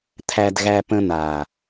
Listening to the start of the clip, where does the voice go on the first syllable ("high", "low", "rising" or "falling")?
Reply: high